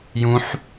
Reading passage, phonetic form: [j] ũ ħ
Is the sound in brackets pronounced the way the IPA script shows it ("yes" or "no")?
yes